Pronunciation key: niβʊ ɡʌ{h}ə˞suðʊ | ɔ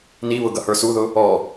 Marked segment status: correct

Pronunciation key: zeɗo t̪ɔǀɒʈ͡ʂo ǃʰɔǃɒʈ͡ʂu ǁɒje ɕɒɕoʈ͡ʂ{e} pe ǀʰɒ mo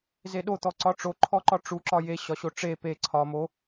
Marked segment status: correct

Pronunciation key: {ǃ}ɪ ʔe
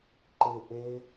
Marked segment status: correct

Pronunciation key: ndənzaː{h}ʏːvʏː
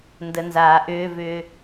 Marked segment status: incorrect: ʔ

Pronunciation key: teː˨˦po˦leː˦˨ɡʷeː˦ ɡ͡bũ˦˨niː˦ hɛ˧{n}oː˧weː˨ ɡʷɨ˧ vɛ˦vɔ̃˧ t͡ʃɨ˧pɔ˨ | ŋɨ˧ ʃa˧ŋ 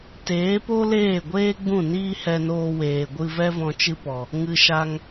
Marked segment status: correct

